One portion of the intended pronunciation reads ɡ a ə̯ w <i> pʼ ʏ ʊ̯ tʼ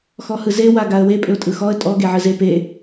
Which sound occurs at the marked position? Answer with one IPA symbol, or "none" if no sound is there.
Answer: e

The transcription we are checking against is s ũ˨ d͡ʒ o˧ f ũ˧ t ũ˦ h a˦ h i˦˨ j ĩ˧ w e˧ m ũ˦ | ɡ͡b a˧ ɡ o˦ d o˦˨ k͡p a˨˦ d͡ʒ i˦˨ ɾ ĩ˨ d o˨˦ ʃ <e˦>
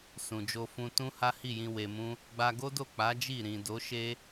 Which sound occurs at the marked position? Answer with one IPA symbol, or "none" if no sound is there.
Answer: e˦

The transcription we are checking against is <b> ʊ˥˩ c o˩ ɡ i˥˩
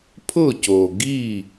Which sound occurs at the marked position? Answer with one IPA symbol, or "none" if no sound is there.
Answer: pʰ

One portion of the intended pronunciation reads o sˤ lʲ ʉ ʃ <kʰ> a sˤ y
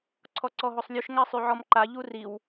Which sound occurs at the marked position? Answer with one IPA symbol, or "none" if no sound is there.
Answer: ŋ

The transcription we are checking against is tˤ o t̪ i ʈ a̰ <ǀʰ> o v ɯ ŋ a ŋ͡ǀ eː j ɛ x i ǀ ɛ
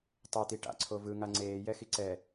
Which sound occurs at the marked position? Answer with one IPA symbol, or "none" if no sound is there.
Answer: ǀʰ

